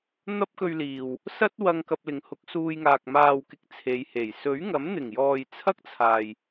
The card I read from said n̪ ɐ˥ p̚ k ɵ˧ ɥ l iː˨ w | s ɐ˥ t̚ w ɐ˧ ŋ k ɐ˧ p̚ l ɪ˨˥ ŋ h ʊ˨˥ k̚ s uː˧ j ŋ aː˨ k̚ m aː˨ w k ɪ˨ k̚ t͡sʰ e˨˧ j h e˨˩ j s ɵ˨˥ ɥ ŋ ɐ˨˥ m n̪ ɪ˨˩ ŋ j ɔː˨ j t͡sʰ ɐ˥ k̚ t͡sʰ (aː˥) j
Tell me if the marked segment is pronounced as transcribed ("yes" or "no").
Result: no